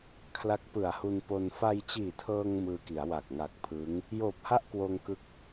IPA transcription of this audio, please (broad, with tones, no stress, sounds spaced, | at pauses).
kʰ l a˦˥ k̚ p ɯ˨˩ a̯ h u˧ n p o˧ n f a˧ j t͡ɕ iː˨˩ tʰ ɤː˧ ŋ m ɯː˧ k i˩˦ a̯ w a˨˩ k̚ ŋ a˨˩ k̚ pʰ ɯː˦˥ ŋ | j oː˨˩ p̚ h a˥˩ ʔ k w oː˧ ŋ k ɯ˦˥ k̚